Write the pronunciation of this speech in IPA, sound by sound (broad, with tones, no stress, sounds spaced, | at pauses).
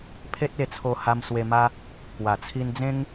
pʰ e˦ t̚ e˧ t͡sʰ o˧ h a˧ m s w e˧ m a˦ | k w a˨˩ t͡sʰ i˧ n d͡z ẽ˦ ŋ